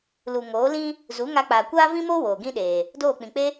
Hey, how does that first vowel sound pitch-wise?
low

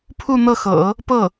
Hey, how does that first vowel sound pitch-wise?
falling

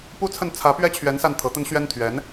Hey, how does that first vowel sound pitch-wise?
falling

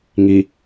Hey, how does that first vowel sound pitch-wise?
low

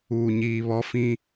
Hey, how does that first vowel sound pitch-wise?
low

